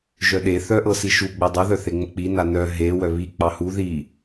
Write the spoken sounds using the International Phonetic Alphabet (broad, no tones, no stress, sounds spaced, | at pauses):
ʒ œ ɗ e θ œ ʔ ɤ s i ʃ u ɡ͡b ɛ dˤ œ ð œ θ e ŋ͡m ə k͡p i n a n œ ɦ e w œ β i k͡p ɑ h u ð i